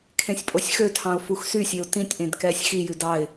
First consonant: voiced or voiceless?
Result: voiceless